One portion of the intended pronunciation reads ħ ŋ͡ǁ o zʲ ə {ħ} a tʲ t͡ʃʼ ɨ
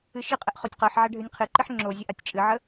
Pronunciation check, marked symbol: incorrect: ʔ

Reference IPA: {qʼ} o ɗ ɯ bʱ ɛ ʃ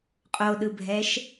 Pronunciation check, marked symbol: correct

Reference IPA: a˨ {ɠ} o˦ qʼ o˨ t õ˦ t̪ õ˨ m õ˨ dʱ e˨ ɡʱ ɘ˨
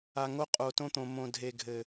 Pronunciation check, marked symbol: incorrect: ŋ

